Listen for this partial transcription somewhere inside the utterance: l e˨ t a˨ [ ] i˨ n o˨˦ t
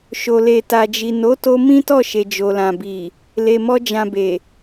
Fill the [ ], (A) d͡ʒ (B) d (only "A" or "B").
A